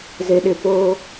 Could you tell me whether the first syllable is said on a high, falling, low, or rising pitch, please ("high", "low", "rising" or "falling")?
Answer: low